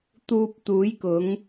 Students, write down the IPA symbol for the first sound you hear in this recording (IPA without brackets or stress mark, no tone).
t̪